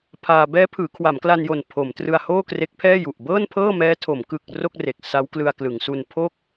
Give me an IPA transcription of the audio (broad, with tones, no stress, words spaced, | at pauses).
pʰaː˧ bɛː˦˥pʰɯː˩˦ kʰwa˩˦mkla˧njo˨˩n pʰo˩˦mtrɯ˧a̯ hoː˥˩kre˦˥k̚pʰɛː˥˩ju˨˩ʔ bɤː˥˩npʰɤː˥˩mɛː˦˥tʰo˩˦m kɯ˨˩k̚ ro˥˩k̚re˨˩k̚ sa˦˥wklɯ˧a̯klɯ˩˦ŋsu˧n pʰo˥˩k̚